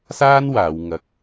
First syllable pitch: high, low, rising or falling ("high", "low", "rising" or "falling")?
high